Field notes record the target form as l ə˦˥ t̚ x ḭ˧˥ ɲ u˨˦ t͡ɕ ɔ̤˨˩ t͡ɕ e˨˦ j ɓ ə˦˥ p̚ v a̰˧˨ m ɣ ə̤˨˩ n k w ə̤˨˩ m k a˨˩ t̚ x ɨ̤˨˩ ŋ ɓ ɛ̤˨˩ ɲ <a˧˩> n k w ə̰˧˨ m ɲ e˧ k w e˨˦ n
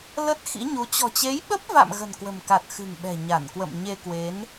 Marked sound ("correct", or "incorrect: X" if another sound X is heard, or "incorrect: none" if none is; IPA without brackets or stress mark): correct